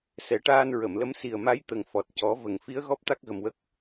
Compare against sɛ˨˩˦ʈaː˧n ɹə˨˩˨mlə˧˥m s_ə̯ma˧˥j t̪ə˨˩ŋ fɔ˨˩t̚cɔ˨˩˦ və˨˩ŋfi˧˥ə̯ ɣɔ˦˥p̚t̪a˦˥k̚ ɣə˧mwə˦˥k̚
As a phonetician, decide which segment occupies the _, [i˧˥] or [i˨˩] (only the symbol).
i˨˩